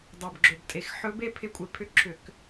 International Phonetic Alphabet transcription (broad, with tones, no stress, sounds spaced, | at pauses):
dˤ ɛ˨˩ b ɡ͡ǁ o˨˩ b tʼ e˧˩˧ x ħ ɵ˧˥ b e˥˧ pʰ ɪ˧˥ kʷʼ ɪ˧˩˧ pʰ ʏ˧˥ ǁʰ ʏ˧˩˧ k